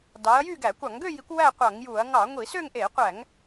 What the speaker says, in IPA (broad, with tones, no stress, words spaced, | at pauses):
dɑ˨˦ɐ̯jy˥˧ɡæ˧˩˧ kʷɑ˧˩˧ŋɡø˥˧ji˨˦kʷ wæ˥˧qʷɑ˧˩˧ŋju˧˩˧ɐ̯ ŋɑ˧˩˧ŋʷi˧˩˧ sø˥˧ŋʔe˧˩˧ qʷæ˧˩˧ŋ